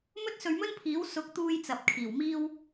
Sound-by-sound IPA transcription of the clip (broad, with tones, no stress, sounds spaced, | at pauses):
m ɵ˥ t̚ s ɵ˧ ɥ m ɵ˥ n pʰ iː˨˥ w s ʊ˨˥ k̚ t̪ uː˧ j t͡s ɐ˨ p̚ kʰ iː˨˩ w m iː˥ w